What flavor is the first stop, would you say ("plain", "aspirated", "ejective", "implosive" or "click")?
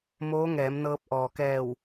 plain